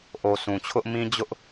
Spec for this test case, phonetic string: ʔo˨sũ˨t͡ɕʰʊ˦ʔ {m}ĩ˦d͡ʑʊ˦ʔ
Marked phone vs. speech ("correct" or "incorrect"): correct